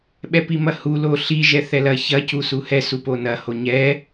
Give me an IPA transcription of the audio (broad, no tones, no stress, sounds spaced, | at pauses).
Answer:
ɓ ɛ p i m ɐ h u l o ɬ i ʒ ɛ θ ɛ l ɐ ç ɐ c u s u h ɛ s u p o n ɐ h o ɲ ɛ